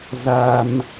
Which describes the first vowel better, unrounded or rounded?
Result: unrounded